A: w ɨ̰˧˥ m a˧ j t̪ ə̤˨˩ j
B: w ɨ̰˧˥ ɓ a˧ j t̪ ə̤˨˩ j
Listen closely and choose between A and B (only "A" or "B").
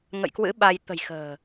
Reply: B